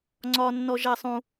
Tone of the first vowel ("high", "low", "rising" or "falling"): high